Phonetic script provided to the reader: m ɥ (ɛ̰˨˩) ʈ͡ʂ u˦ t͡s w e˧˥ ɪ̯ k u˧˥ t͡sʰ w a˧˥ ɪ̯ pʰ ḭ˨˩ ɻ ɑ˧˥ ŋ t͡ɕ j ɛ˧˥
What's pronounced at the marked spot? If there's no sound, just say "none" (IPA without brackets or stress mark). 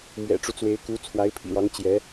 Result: ɛ̰˨˩